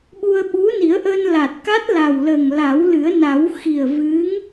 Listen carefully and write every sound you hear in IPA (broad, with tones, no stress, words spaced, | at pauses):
ɓu˧ə̯ɓu˧˥ni˨˩˦ə̯ʔəː˧n la˨˩t̚ka˦˥t̚la˨˩wləː˨˩ŋ la˨˩˦wlɨ˨˩˦ə̯na˨˩˦w xi˨˩ə̯ vɨ˧˥ŋ